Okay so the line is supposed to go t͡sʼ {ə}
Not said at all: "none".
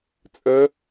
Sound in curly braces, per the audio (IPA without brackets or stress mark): ə